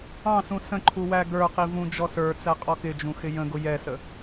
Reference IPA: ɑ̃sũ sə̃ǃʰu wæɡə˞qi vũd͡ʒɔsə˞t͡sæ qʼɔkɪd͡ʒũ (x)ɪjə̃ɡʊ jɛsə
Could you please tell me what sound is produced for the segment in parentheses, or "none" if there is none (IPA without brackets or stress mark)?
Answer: x